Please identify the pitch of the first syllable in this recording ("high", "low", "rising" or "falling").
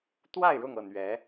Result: falling